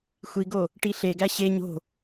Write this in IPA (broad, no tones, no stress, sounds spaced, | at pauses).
xʷ i ɡ o | ʈ i ɬ e ɡ æ ɕ e ɲ o̤